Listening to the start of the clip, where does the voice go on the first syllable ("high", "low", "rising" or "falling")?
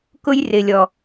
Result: high